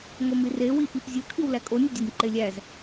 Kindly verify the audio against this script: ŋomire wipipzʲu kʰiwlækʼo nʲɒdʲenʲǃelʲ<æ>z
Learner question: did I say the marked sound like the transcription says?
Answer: yes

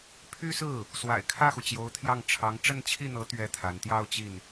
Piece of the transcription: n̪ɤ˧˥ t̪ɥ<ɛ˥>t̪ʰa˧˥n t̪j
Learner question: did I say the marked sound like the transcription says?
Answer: yes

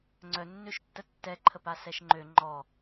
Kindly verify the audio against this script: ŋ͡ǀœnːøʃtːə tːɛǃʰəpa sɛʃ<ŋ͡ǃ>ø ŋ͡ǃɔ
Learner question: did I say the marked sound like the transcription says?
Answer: yes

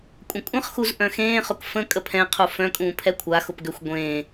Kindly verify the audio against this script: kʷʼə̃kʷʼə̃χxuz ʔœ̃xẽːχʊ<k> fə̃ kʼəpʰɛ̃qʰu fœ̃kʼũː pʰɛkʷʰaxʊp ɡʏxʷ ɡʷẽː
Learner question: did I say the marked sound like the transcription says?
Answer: yes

